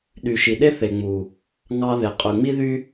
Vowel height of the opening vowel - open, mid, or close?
close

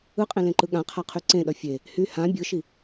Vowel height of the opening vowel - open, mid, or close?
close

